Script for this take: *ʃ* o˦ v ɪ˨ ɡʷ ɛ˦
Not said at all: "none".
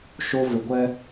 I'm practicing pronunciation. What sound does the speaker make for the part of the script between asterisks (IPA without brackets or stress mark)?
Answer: ʃ